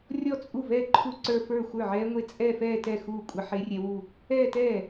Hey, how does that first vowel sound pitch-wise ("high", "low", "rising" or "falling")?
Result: falling